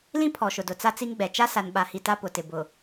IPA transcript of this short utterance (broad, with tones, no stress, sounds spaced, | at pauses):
l ĩ˦ pʰ ɔ˨ ʃ ʊ˨ d ʊ˨ t͡s a˦ t͡s i˦ ŋ ɡ͡b ɛ˨ t͡ʃ a˦ s a˨ n ɓ a˨ h i˨ t a˦ p ʊ˨ t ɪ˨ b ʊ˨